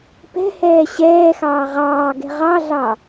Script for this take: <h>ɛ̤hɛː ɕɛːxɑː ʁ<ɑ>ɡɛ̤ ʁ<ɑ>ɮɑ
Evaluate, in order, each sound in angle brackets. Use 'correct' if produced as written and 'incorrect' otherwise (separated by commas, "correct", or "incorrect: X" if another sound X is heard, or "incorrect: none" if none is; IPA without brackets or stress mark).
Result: incorrect: p, incorrect: ɑː, correct